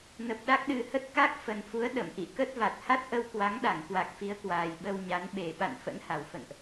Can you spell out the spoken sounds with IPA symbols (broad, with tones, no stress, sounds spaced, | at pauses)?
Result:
n ə˨˩ p̚ ɗ a˦˥ k̚ ɗ ɨ˨˩ h ə˦˥ t̚ k a˦˥ k̚ f ə˨˩ n f u˨˦ ə̯ ɗ ə̰˧˨ m ʔ ḭ˧˨ k ə˦˥ t̚ v a˨˩ t̚ h a˦˥ t̚ ʔ ə˧ w k w a˨˦ ŋ ɗ a˧˩ ŋ k w a˨˩ k̚ f i˨˦ ə̯ k w aː˨˩ j ɓ ə˧ w ɲ a˨˦ n ɓ e˨˩ ɓ a̰˧˨ n f ə̰˧˥ n h a˨˩ w f ə̰˧˨ n ʔ